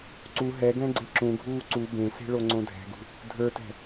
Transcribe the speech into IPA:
ǀ u ɦ ɛ ɡ ɛ̃ ɡ͡ǀ e ǁ ũ ɡʱ uː ǀ u b ẽ s e̤ ɭ o ŋ͡ǀ õ dʱ ɛ̤ ɡ ṳ | dʱ ə˞ t ɛ̤

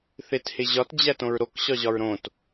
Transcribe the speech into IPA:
θ e t h e ʑ ɒ t d͡ʑ æ t õ ɹ ɾ o k ɕ ɒ ʑ ɒ ɹ ɾ õ t

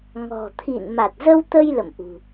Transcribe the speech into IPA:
ŋ ɔ̤˨˩ t̪ʰ ḭ˧˨ n m a˨˩ t̚ z ə˧ w t̪ ə˧ j l ə̰˧˨ m ʔ ṳ˨˩

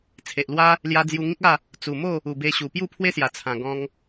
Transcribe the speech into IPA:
t͡sʰ e˨ ʔ l w a˦ | l j a˧ d͡z j u˧ ŋ ĩ˦ k̚ a˥˧ | t͡s u˨˩ m o˥˧ | u˨˩ b e˧ ɕ u˨˩ p j u˥˧ pʰ w e˦ s j a˨˩ t͡sʰ ã˨˩ ɡ ɔ̃˧ ŋ

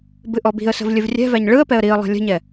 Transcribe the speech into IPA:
b ɨ ʔ ɔ b i̤ ə̯ s ə̤ v lʲ ɨ v rʲ ɛ̤ v æ ɲ ɭ ɯ ə̯ p ɛ ə̯ ɾ i ə̯ lˠ ɛ̤ lʲ ə̤ ɲ ɛ

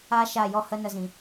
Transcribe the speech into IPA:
a˦ ʃ a˦˨ j ɔ˦ h ə˦ n ə˧ z ĩ˨

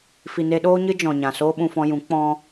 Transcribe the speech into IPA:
f i˨ n e˧ ɗ oː˦ ɲ ɨ˦ d͡ʒ ɔ̃˨ ɲ ã˨ s oː˦ ɓ ũ˧ f ɔ̃˧ j ũ˨˦ k͡p ɔ̃˦

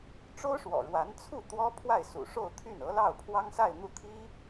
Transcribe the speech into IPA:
ʈ͡ʂ o˥ ʊ̯ ʂ w ɔ̰˨˩ ɻ w a˧˥ n t͡sʰ u˥˩ t̪ w ɔ˥ pʰ w a˥˩ ɪ̯ s ṵ˨˩ ʂ o˥˧ ʊ̯ t̪ʰ y˥˩ n ɤ˧˥ l ɑ˥˩ ʊ̯ pʰ w ɑ˥ ŋ s a˥˧ ɪ̯ n̪ u˥˩ t̪ʰ i˥

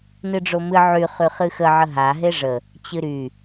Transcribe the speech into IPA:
n ɨ ɖ͡ʐ o m ɨ ʕ y χ y χ ɨ x ə ʕ ə ɦ a ɦ e ʐ ə | t͡ɕ ɨ ɾ y

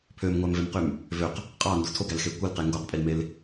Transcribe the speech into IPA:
pʰ ø m ŋʷ æ m v e m q y m | v ø q | qʼ ɑ n d u tʰ o ɡ æ l x e kʷ ɯ l q e ŋ ɡ o q pʼ i l m e l

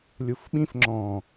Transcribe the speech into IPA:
lʲ u f ɓ ĩ f ŋ͡ǁ ɔ̃

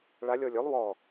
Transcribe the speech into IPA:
ɭ a lʲ ɔ lʲ ʏ lˠ w ɔ

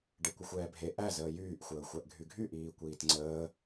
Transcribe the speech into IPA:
ɖ e kʷ ə xʷ ɛː bʱ e ʔ æ z əː j yː ʔ xʷ əː xʷ æ ʔ ɡʱ y ɡʱ y ʔ iː kʷ iː t ŋ͡ǀ əː

